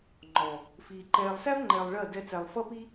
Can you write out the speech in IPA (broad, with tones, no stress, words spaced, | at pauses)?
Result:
ŋ͡ǃɔ˨ | fiː˨ǃɛː˧lˠ sæ˦vŋ͡ǃɛː˨lˠ ɭɜ˦˨ dɛ˧t͡sæ˨lˠfʌ˦pi˦